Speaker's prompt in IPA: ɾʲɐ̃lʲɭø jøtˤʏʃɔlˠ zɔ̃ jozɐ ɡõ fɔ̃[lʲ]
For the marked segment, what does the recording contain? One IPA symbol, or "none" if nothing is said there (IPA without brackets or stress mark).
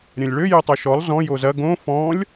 lʲ